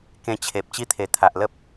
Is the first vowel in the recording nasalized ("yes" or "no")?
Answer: yes